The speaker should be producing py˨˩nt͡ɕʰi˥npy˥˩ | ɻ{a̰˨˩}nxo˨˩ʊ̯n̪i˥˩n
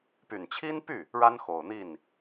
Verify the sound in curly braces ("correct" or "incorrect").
incorrect